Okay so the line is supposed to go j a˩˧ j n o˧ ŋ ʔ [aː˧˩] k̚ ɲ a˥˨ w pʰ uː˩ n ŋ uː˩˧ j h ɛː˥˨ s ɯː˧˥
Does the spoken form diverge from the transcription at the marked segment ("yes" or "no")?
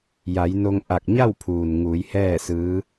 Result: yes